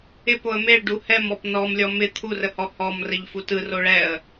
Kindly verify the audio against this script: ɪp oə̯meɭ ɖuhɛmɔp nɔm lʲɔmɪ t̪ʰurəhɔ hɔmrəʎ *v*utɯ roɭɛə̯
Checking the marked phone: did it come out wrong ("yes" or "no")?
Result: yes